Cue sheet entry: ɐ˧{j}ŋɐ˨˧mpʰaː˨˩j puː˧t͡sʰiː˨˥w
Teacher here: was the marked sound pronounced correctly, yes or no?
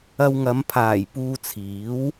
no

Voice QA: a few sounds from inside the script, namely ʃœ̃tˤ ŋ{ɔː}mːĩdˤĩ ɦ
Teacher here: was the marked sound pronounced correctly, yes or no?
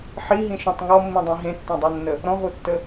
no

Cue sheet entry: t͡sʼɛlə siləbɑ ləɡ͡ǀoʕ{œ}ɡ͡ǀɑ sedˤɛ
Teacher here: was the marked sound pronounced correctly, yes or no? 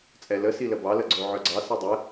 yes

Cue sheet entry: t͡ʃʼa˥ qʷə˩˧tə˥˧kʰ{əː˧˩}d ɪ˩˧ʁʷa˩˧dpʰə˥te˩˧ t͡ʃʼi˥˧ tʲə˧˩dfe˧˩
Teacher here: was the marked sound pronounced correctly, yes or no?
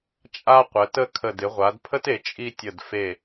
no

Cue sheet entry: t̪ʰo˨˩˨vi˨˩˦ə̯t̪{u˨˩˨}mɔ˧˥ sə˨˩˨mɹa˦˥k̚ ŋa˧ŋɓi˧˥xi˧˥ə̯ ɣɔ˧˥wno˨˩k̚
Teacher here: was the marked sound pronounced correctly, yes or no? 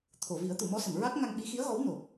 yes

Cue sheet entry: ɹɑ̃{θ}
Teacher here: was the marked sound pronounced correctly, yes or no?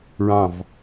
no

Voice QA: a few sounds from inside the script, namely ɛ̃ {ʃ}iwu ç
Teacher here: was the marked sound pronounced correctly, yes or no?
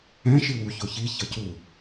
yes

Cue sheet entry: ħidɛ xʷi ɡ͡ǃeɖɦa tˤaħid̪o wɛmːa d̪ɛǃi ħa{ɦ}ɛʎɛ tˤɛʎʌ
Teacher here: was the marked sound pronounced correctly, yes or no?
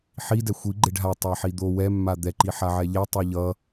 no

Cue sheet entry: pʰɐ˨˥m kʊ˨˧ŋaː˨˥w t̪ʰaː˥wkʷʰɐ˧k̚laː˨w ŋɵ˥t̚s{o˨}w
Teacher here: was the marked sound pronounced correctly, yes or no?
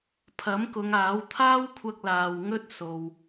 yes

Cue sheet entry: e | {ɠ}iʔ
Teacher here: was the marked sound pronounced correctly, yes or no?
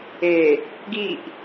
no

